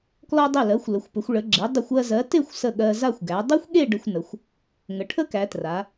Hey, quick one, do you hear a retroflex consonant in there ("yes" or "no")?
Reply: yes